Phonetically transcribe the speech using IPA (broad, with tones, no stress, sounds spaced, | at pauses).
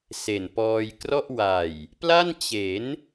s e˨˩ n p ɔː˧ j k r ɔ˥˩ ʔ w a˨˩ j | p l a˥˩ n t͡ɕ e˩˦ n